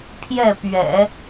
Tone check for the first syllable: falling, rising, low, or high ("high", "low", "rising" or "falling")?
falling